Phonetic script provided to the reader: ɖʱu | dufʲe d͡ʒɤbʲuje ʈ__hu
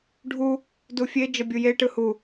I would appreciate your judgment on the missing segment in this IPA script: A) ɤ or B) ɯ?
B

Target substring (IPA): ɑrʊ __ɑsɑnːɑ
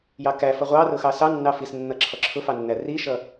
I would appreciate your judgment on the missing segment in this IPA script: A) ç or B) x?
B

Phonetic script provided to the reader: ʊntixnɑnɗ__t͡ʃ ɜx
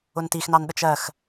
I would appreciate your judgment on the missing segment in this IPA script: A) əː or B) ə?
B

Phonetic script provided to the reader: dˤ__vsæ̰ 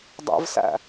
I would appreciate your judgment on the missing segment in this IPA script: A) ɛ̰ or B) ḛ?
A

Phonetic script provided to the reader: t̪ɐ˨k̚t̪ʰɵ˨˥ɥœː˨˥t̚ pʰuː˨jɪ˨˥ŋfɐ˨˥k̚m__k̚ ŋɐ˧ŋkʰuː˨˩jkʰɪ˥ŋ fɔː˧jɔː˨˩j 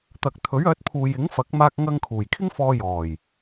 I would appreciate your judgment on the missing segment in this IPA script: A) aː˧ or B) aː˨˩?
A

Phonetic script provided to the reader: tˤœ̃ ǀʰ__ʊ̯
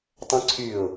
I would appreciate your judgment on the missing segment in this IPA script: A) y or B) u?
A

